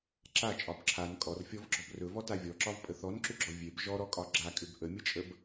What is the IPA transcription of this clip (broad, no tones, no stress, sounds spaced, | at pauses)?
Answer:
ǁ a t͡ʃʼ ɒ b ǁʰ a n kʼ ɔ r fʲ ɔ v ɡ͡ǁ ɔ b r ɵ v ɔ t a vʲ ɔ ǁ ɒ v pʼ ə θ ɔ n ǁ ʏ ɡ͡ǁ ɔ vʲ e b ʒ ɔ ɾ ɔ kʼ ɒ ɡ͡ǁ a kʼ ʏ b ʔ ə mʲ ə t͡ʃʼ ə b